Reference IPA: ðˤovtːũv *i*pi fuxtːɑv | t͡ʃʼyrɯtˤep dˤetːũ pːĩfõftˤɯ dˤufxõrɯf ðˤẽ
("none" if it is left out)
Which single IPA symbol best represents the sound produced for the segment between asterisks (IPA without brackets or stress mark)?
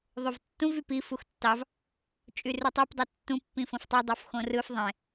y